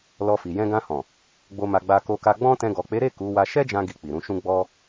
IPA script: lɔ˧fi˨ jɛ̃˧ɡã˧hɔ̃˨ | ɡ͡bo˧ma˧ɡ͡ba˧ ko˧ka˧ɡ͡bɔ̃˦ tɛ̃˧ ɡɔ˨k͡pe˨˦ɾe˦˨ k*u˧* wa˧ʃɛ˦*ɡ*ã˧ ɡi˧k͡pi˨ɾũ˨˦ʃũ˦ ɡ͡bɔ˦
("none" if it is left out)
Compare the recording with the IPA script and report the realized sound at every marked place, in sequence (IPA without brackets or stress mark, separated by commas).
u˨˦, d͡ʒ